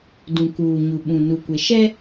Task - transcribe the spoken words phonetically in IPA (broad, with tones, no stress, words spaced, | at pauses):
dũ˨kuː˨ɲu˨ ɓũ˨ nu˨kʷe˨ ʃɛ˦